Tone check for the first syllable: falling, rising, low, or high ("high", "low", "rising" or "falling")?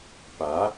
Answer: rising